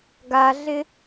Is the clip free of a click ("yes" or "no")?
yes